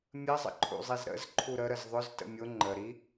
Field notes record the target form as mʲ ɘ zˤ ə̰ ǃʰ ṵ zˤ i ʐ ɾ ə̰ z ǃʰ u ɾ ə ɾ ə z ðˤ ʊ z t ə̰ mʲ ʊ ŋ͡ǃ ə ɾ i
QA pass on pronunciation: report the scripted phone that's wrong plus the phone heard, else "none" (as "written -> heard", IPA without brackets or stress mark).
ʐ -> z